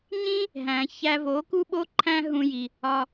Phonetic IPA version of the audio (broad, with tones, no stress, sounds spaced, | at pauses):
ɲ ĩ˦ | ɦ æ̃˨ ç æ˧ v o˨˦ k u˦ ɓ o˦ ǃʰ æ̃˦ ɦ ũ˧ j i˨ | ɒ˧